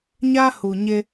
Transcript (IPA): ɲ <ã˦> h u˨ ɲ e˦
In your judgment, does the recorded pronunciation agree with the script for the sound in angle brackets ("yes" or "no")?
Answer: no